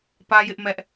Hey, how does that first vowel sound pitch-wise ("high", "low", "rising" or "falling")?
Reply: high